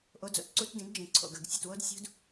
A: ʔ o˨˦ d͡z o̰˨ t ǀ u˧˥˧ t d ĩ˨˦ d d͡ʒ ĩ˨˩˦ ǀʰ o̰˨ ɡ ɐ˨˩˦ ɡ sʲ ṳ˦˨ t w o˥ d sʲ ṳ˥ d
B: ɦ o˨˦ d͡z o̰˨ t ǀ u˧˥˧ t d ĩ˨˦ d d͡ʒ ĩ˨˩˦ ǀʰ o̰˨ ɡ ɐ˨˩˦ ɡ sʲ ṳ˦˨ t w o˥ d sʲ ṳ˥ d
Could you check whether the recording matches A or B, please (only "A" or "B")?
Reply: A